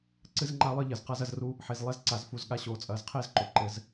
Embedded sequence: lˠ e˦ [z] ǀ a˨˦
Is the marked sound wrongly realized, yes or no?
no